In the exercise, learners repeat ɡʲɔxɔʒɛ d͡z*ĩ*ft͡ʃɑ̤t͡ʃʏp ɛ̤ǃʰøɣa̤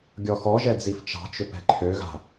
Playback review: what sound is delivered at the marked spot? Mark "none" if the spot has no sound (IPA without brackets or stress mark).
i